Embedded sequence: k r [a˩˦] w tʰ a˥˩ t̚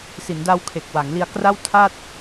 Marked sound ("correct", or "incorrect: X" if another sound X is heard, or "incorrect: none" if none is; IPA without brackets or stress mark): incorrect: a˥˩